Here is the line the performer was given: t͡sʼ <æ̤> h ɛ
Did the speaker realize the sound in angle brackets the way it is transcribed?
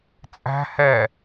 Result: yes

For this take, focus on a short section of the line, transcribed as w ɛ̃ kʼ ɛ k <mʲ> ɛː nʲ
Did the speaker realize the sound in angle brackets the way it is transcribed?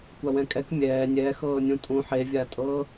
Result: yes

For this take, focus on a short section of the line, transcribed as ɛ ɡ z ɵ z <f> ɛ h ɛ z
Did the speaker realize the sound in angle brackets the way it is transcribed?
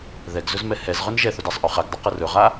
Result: no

